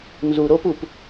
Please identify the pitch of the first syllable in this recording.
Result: low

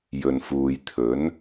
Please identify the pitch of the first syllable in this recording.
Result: low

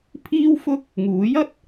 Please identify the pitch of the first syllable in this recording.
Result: high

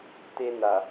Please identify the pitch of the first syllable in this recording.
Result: high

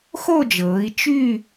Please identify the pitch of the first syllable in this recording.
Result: falling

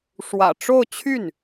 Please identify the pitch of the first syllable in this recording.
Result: low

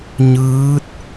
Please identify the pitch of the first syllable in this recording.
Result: rising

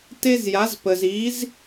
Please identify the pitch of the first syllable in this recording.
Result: high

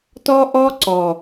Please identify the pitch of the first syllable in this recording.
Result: high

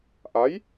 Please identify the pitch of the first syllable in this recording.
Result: rising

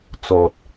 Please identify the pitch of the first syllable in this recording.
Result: low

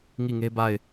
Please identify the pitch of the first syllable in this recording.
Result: falling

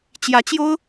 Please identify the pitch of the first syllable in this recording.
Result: rising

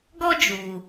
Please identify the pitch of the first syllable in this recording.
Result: high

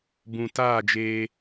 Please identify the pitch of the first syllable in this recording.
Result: low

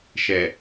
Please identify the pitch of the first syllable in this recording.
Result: low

